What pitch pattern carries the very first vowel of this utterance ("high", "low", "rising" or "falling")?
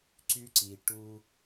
high